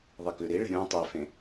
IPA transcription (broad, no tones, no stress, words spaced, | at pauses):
ðˤikʉɾiɭe̤ ɾʲũ tˤifẽ